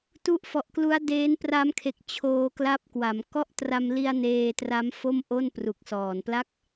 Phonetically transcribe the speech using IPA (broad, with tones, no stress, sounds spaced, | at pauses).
t u˦˥ ʔ f ɔ˨˩ ʔ k l u˦˥ a̯ d eː˦˥ n p r a˦˥ m kʰ e˨˩ k̚ t͡ɕʰ oː˧ k l a˦˥ p̚ k w a˩˦ m k ɔ˥˩ ʔ t r a˧ m l i˧ a̯ n eː˧ t r a˦˥ m f o˥˩ m ʔ o˥˩ n p r u˨˩ k̚ s ɔː˨˩ n p l a˥˩ k̚